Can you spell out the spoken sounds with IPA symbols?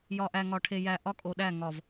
j ɒ˨ ʔ æ˨ ŋ ɒ˨ ʈʰ e˨ j æ˨ ʔ ɒ˦ kʼ o˨ ɗ æ˦˨ ŋ ɒ˨ v

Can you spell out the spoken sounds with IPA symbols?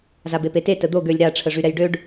z a b e p e t e t ə d̪ o ɡ ø lʲ ɾ a ʈ͡ʂʰ ə ʐ y ɾ ɛ j ɖ ø ɖ

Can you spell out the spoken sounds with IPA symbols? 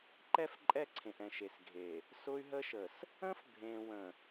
ǃ ɛ˦˨ f ǃʼ ɛ˦˨ ǀʰ ẽ˨ ʔ ɛ̃˨ ʃ e˨ s ɡʱ e˨ | s ʊ˦ y̯ ɦ ə˦ ʃ ə˨ s | ə̃˦ f bʱ ẽ˨ w ə̃˨

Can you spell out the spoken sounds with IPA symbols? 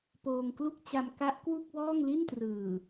p oː˧ ŋ k l u˥˩ k̚ t͡ɕ a˧ m k a˦˥ ʔ k w u˥˩ k̚ w ɔː˥˩ ŋ l i˥˩ n t r ɯː˨˩

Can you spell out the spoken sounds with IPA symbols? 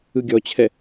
ɯ ɡʲ ɔ t͡ɕʰ ɛ

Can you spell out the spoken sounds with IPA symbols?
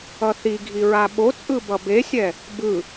ʌ θ i ɡʱ i ɹ a ɓ o t͡sʼ ɯ b ʌ b e sʲ ɛ | b ɯ

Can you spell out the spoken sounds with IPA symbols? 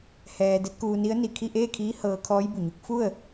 h ɛː˧ d e˧˥ t̚ k uː˧ n i˧˥ ə̯ n i˩ kʰ i˥˨ ʔ eː˥˨ kʰ iː˧˥ h ɤː˧ kʰ ɔː˧˥ j b u˩ ɲ u˧˥ k̚ f u˥˨ ə̯

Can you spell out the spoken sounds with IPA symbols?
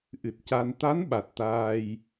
ʔ ɨ˨˩ t̚ c a˧ n t̪ a˧˥ n ɓ a˨˩ t̚ t̪ aː˧ j

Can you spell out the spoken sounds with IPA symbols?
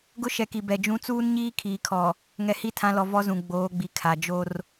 ɡ ʊ˦ ʃ ɛ˨ k i˨ b ɛ˨ d͡ʒ ũ˦ t͡s uː˦ n ɲ iː˦ kʰ iː˨ kʰ ɔ˨ | ŋ ɛ˨ h i˦ tʰ ã˨˦ l ɔ˨ v ɔ˦ z ũ˨ ɡ͡b oː˨˦ ɡ͡b i˨ kʰ a˨ d͡ʒ o˦ r

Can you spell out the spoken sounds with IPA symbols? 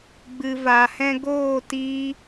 ɡ͡b ɨ˨ v a˨ h ɛ̃˧ ɡ oː˦˨ t i˦

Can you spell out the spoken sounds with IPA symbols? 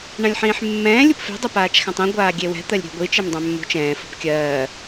ɳ ã lʲ ħ ĩː ħ mː ɛ̃ː lʲ u p f e̤ dˤ ɛ p aː t͡ʃ x ã tˤ ĩ ɡʷ aː ɡʲ e w ɛ̤ t̪ ɜ lʲ ɾʲ ɛ̤ ɡʷ i t͡ʃ e m dˤ œ̃ mː ṳ t͡ʃ ɛ̃ː f u p kʲ ɜː

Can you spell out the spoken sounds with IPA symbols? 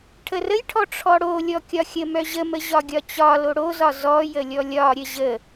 ʈʰ ə r ə j ʈʰ ɔ ʈ͡ʂʰ ɔ ɽ o lʲ ɔ kʲ ɒ xʲ ə m œ ʑ ə m ə ʑ ɒ ɡʲ ɒ t͡ɕ ɒ l o ɽ o z ɒ z ɔ j ə lʲ ɔ lʲ ɒ ɾʲ ə ʑ ə

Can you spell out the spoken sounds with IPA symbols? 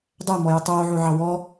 dˤ æ m ɔ j ɐ tˤ oː ʕ o ʕ ɑ w ɔ

